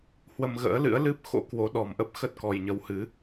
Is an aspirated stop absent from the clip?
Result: yes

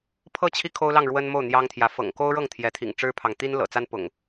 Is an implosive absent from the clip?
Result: yes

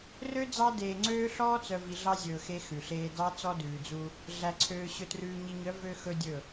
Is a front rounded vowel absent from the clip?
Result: no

